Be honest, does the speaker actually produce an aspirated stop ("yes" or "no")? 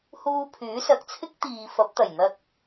yes